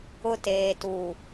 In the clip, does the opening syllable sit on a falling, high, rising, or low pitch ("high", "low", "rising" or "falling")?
high